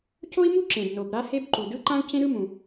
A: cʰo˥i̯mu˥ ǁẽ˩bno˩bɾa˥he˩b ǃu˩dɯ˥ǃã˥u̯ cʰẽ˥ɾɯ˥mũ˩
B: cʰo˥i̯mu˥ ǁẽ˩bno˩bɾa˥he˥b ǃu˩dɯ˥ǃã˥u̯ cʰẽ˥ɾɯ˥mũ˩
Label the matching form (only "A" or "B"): B